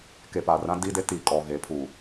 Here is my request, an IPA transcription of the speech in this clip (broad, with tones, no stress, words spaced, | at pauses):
ke˨pa˨rã˦ di˦de˦ ti˨kʼɔ˨ɣe˨˦ pʰu˨